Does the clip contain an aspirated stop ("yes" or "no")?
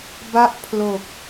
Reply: yes